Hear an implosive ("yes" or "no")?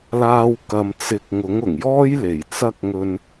no